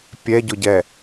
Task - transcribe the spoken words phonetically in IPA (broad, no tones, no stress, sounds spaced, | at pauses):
pʲ ɛ ɟ ʊ ɟ ɛ